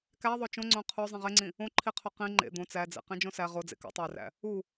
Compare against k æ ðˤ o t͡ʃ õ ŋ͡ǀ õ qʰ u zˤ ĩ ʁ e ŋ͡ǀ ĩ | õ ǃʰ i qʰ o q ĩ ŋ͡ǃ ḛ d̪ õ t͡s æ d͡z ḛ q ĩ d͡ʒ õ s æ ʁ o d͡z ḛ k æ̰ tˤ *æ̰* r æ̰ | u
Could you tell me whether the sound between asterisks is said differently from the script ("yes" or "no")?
yes